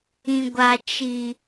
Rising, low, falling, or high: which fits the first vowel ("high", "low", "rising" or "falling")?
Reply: low